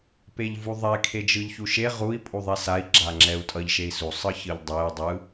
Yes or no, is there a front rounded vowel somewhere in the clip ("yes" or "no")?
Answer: no